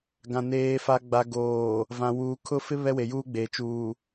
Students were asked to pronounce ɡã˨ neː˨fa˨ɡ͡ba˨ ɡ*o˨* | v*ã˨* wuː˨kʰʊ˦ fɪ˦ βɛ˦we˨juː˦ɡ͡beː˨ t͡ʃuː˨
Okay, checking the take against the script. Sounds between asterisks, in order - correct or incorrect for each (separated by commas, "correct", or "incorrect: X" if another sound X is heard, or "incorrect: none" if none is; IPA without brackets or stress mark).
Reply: incorrect: oː˨, correct